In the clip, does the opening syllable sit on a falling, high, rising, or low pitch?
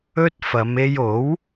high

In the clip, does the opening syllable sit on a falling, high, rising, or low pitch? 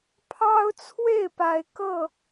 high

